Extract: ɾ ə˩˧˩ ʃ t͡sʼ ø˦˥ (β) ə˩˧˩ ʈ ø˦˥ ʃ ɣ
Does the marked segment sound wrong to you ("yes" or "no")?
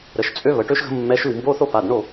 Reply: no